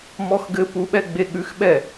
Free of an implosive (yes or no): no